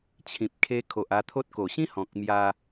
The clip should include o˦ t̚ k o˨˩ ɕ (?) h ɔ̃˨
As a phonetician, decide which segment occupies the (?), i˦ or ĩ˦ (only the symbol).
ĩ˦